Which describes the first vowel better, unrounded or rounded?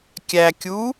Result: unrounded